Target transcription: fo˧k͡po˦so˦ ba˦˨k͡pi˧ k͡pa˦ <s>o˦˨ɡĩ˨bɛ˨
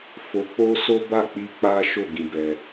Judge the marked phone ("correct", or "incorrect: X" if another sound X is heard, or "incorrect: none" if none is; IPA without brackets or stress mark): incorrect: ʃ